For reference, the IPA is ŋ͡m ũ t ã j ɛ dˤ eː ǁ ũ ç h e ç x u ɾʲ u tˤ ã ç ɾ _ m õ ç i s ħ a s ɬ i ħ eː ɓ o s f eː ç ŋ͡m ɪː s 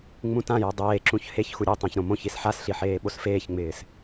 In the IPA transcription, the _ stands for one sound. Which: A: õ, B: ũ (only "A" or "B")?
A